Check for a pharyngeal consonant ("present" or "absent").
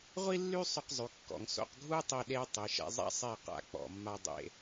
absent